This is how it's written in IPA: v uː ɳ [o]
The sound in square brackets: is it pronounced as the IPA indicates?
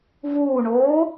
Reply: no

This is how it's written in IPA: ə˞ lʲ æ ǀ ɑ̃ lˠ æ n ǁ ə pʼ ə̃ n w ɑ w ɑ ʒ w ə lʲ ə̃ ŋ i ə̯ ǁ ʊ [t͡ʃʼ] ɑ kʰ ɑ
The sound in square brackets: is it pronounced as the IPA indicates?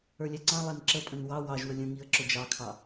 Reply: no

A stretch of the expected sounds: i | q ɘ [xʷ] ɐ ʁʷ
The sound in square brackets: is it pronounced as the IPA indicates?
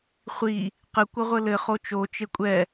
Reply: no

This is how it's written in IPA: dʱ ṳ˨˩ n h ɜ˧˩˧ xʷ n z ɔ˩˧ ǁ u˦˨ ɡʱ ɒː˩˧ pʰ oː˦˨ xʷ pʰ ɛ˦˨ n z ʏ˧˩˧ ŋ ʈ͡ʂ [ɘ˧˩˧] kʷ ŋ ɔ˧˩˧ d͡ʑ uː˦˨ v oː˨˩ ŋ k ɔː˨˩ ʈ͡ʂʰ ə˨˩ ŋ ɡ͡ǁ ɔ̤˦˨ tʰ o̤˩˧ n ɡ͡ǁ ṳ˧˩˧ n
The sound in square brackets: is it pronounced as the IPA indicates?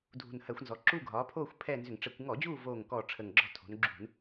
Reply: yes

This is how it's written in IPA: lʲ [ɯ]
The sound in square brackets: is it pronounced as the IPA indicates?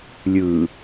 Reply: yes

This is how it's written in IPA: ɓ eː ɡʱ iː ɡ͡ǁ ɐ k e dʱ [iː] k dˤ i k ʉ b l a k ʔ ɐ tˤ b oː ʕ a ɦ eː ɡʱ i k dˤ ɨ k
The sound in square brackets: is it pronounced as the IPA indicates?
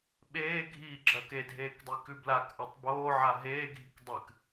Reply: no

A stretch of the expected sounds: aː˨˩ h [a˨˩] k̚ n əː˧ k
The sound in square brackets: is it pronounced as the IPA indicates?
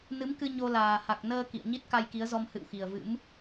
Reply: yes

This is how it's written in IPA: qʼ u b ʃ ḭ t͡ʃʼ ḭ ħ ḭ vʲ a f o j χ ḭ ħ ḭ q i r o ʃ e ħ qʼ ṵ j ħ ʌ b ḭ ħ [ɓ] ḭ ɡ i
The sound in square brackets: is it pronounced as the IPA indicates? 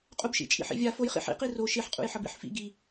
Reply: no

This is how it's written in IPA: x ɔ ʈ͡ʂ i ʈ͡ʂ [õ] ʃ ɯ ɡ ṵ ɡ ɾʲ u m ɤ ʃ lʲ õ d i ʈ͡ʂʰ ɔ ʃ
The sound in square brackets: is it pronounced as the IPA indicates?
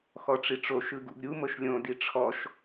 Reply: no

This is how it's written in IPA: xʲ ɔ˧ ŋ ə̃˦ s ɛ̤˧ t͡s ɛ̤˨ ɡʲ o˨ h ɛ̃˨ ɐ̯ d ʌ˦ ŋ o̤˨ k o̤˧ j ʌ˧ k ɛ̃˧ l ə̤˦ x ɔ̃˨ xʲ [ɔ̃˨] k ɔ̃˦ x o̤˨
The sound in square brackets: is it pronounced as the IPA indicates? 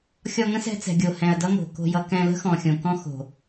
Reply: no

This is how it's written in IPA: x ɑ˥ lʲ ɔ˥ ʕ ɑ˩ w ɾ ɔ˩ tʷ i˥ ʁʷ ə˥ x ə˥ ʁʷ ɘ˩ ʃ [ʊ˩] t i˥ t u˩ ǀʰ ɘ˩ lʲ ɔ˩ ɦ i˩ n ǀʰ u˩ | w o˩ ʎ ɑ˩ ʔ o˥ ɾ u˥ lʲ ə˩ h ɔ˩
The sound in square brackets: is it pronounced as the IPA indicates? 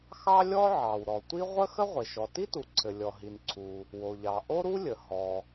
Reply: no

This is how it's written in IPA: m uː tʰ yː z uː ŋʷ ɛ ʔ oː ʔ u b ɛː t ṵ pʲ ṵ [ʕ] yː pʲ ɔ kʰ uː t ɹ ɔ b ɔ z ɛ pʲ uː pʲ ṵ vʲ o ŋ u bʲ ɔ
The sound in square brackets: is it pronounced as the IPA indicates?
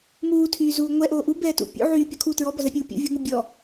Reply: yes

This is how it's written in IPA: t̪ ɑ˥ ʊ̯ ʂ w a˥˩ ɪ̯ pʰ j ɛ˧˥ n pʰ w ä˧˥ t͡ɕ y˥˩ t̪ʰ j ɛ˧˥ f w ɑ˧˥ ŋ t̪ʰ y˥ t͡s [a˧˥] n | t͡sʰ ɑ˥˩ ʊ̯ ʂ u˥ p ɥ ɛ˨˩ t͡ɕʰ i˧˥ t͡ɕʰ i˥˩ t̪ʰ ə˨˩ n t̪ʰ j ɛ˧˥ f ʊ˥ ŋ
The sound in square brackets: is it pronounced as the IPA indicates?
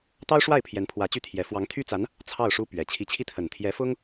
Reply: yes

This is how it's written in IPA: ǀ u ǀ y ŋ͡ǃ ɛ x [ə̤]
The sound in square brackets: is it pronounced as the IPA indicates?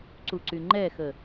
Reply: no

